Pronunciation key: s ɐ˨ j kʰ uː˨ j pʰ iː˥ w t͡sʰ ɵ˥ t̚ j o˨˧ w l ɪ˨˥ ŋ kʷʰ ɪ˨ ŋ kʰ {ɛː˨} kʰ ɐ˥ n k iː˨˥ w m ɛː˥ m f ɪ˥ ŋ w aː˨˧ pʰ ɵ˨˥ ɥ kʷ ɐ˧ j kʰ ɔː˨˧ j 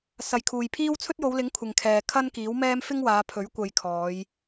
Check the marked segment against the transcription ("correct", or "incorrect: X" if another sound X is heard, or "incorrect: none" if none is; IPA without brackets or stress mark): correct